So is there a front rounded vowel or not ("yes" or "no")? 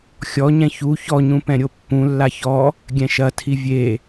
no